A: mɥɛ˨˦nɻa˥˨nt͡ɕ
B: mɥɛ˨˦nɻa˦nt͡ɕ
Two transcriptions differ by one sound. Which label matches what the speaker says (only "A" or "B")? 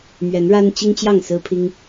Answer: B